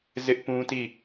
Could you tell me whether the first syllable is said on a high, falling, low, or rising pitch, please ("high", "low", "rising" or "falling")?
high